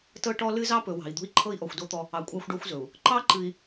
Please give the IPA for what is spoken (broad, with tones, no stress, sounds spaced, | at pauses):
t ɤ˦ ʈ ɔ˦ l ɨ˦ z ɑ˦ p ɵ˨ w ɑ̤˨ i̯ d̪ ṳ˦ i̯ ǃʰ ɤ˦ i̯ ʔ ɔ˨ xʷ d o˦ t̪ ɔ˦ | ɑ˨ kʷʼ ɑ˦ xʷ ɖ ɔ˦ xʷ z ɵ˨ u̯ | ǃ ɑ˦ ǃ ɨ˨ i̯